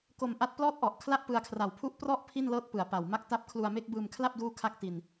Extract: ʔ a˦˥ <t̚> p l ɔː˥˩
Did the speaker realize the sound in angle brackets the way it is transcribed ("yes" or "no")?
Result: yes